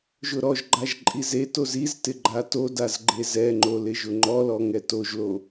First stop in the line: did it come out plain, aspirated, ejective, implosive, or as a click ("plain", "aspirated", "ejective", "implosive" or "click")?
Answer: click